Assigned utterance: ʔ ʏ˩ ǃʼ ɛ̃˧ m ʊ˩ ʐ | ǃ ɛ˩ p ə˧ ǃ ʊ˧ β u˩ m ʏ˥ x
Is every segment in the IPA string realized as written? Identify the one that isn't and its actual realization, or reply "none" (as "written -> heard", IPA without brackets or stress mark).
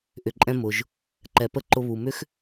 ʐ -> ʒ